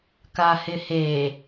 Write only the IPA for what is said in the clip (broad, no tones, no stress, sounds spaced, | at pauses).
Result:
k a h ɪ h e